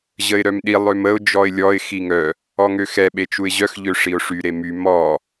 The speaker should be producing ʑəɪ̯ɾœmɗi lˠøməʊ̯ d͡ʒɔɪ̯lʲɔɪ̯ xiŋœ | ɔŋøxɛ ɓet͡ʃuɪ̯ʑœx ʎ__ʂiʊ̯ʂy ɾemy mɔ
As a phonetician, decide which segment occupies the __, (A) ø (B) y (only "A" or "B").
A